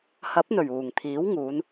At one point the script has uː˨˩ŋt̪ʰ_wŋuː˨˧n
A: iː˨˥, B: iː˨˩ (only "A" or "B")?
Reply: A